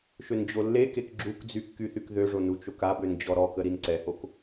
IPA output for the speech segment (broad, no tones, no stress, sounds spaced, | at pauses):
ʃ ø n d͡ʑ o lː e k e k ɡ͡ǁ u k d͡z y kː y θ y k ð ø ʐ o n u t͡ʃ o k a b ø n d͡ʑ ɔ ɾ ɔ k ə ɾ i n ǀ ɛ h o k